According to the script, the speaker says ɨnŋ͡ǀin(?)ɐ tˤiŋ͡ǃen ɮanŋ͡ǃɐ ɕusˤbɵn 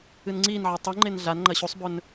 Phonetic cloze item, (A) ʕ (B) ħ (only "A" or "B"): A